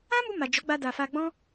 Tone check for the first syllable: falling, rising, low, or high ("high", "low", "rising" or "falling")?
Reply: high